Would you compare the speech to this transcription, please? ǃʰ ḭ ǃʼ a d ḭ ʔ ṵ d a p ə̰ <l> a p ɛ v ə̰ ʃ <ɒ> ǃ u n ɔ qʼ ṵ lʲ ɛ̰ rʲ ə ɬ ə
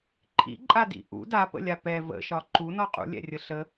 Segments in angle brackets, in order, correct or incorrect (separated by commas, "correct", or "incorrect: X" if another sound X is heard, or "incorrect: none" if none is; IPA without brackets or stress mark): incorrect: lʲ, correct